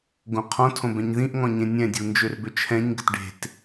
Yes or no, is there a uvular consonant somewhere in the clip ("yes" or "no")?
yes